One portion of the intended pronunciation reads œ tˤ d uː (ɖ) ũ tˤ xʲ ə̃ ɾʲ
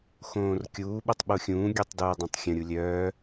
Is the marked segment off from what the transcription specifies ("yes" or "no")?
yes